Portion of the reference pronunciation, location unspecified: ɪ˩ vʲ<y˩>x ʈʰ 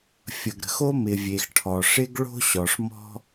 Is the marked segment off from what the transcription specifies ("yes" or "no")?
yes